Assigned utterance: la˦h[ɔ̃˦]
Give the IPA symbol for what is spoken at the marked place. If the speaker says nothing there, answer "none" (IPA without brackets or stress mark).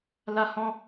ɔ̃˦